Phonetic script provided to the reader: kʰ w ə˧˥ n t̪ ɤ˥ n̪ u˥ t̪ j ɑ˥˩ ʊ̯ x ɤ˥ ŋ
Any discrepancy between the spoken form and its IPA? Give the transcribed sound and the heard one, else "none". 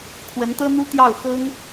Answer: none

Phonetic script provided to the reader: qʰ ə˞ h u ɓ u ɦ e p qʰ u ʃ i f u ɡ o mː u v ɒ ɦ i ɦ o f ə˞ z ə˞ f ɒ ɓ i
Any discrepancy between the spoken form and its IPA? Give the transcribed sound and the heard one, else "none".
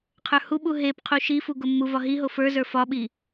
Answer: none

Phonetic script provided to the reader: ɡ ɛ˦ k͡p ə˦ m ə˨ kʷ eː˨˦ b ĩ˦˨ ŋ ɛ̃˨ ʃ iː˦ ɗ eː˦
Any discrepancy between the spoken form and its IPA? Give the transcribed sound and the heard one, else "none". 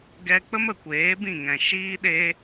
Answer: none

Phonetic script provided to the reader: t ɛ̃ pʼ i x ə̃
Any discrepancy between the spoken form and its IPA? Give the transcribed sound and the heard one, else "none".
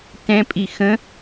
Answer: none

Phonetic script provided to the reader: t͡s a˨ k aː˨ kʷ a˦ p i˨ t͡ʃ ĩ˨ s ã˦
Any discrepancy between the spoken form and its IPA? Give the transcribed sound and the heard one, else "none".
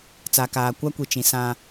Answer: p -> kʷ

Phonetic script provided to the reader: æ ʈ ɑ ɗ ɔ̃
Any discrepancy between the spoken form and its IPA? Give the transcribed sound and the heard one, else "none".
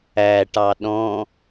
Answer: none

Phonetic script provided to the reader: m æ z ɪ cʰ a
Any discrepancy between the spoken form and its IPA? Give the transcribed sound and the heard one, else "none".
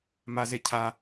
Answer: æ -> a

